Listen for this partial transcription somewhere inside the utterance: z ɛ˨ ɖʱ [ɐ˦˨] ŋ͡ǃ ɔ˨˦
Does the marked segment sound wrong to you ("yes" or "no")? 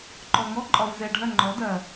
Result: no